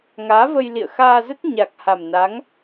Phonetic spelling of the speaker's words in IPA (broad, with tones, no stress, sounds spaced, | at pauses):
ŋ aː˨˦ v ə˧ j l ḭ˧˨ ə̯ x aː˧ z ə˦˥ t̚ ɲ a˨˩ k̚ h a˨˩ m n a˨˦ ŋ